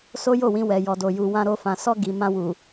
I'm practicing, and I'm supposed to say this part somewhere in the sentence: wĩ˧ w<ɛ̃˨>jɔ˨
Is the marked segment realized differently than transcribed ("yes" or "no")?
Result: yes